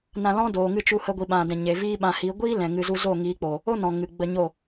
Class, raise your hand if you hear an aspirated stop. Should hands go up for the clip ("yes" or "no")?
no